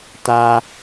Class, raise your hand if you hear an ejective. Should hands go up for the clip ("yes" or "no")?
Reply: no